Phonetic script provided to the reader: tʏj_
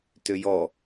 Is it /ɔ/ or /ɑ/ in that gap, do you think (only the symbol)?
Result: ɔ